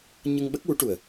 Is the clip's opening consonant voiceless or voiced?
voiced